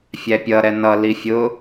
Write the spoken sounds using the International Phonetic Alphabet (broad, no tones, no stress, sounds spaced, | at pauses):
fʲ æ pʲ ʌ ɾ ɛ n ʌ l i fʲ ʊ